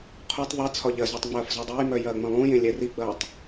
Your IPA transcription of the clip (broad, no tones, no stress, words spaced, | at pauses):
qʰotˤ ðˤet͡sʰɒ ʎɐzotˤ ŋ͡mɐːfzɔdˤejmœ jɐːŋ͡mɐ̃lˠũjẽ lʲɛriɡ͡bɐːtˤ